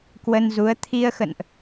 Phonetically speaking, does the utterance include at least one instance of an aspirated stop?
yes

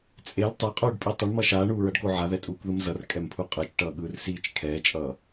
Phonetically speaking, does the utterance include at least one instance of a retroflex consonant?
yes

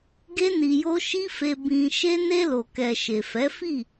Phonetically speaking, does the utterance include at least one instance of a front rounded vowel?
no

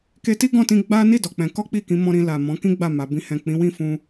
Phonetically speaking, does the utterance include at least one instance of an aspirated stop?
no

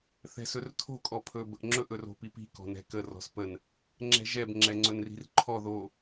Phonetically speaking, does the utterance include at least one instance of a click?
yes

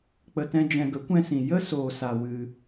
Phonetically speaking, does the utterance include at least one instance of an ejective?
no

